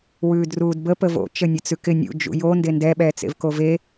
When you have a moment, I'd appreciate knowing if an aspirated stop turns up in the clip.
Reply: no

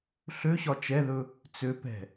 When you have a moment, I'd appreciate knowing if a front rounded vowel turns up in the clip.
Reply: yes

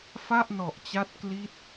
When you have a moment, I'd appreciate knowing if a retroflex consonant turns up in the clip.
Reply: no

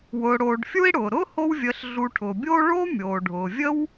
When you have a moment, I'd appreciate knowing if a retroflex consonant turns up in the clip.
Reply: yes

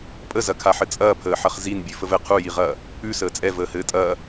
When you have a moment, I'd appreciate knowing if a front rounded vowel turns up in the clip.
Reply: no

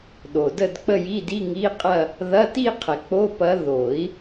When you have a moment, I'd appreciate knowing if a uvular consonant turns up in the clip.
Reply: yes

